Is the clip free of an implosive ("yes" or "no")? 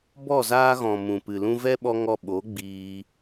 no